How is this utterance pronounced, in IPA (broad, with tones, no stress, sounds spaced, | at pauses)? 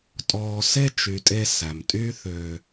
tʼ ɔː˧ s e˦ t͡ʃ y˨ tʼ e˧ s æ˨ m tʼ y˦ θ ø˧